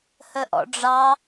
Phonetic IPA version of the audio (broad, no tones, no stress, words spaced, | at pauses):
həʔɔ̰ɖ͡ʐɑ